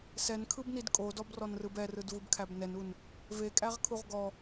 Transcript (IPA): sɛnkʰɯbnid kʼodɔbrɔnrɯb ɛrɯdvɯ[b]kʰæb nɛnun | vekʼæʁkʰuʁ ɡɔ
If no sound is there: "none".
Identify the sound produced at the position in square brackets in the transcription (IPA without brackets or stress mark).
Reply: b